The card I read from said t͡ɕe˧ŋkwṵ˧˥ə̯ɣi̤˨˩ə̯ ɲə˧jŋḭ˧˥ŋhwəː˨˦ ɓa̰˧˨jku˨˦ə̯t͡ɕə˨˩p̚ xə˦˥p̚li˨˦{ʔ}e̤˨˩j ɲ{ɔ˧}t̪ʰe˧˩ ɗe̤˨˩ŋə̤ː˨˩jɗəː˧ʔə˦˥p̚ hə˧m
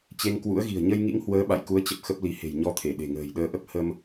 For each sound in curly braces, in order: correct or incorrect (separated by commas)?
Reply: incorrect, correct